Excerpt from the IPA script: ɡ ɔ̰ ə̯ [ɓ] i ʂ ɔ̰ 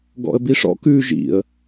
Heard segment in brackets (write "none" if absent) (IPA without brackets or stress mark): b